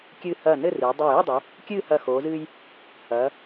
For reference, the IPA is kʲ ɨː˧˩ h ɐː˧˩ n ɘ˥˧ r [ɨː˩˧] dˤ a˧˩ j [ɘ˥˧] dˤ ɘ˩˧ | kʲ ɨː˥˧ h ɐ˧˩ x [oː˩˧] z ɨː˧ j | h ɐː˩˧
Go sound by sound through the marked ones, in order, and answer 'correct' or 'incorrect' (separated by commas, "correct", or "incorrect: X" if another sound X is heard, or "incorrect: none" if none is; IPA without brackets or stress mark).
correct, correct, correct